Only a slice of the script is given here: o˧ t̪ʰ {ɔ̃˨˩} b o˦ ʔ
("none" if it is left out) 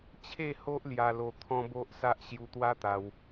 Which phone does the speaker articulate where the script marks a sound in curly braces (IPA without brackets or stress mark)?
ɔ̃˦